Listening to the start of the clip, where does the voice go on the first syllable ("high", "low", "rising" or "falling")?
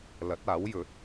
rising